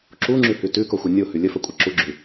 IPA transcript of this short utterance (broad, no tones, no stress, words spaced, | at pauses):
ǁuŋ͡ǁʉhʉ tʉkoxʷɘ nʲohʉ lʲəfəkʷʼə ǁuɡ͡ǁʉ